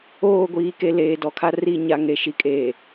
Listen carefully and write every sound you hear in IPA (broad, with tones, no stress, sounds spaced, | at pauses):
oː˦˨ ɡʷ iː˨˦ k e˨ l eː˨ d ɔ˨ kʰ a˦ r i˦˨ ɲ a˦ ŋ e˨ ʃ i˨ kʼ eː˨